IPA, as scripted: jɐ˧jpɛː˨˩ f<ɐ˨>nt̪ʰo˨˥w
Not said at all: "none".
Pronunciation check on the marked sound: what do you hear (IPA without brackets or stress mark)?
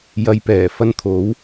ɐ˥